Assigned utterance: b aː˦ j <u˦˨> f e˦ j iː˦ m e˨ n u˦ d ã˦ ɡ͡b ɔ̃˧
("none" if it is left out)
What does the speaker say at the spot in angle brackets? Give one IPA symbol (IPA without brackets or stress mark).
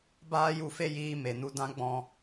u˦˨